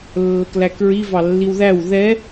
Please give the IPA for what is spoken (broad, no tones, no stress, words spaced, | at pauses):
lːəklækɹi vɑlːiwðæw ðɛ